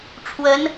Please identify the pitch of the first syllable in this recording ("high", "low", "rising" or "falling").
rising